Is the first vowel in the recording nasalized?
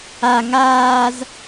no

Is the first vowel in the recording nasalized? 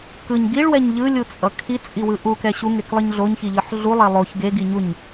no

